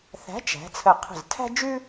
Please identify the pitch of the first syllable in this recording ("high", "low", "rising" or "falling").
rising